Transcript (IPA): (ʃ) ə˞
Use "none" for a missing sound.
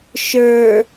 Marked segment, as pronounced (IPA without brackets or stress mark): ʃ